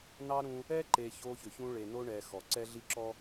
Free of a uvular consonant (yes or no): yes